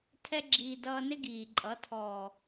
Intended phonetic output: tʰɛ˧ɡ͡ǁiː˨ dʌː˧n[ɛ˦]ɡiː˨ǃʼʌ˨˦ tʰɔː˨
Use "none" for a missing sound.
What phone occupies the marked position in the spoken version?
ɪ˦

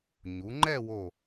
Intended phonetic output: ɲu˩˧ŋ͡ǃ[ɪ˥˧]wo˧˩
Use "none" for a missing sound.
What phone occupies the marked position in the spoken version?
ɛ˥˧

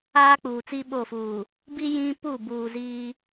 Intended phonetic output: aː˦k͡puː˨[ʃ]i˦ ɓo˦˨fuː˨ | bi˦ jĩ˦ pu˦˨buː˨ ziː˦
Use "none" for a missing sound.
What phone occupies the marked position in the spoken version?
t͡s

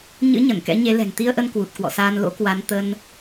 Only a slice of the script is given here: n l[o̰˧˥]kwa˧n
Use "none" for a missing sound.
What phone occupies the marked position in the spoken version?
o̰˧˥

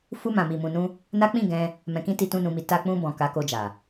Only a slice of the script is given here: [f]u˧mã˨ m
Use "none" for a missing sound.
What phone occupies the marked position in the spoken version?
f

